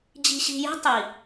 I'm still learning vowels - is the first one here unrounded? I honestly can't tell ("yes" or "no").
yes